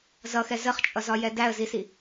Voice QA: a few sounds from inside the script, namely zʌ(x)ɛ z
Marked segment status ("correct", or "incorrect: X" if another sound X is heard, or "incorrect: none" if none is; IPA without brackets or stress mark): correct